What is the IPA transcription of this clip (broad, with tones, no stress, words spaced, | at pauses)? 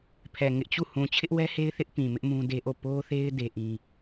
pʰɛ˨ ŋɪ˦ʔt͡ɕu˦˨ hũ˨t͡ɕʰɪ˦ʔwɛ˦he˦ɪ̯ θɪ˦ʔ pĩ˨mɪ˦ʔ mũ˦de˦ʔo˦˨ po˦θe˦ɪ̯ de˦ʔĩ˦